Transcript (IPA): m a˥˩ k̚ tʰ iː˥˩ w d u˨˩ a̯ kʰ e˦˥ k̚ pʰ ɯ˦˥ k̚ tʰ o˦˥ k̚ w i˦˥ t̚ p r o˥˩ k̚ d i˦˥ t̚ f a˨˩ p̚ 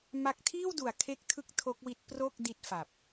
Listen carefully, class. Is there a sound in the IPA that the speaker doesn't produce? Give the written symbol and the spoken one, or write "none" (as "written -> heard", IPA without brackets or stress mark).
pʰ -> tʰ